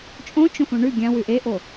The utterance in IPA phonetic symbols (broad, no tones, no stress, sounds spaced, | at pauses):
t͡ʃʼ õ t͡ʃ õ f õ ɳ ʉ ɡʲ ã w ʉ ʔ e ʔ o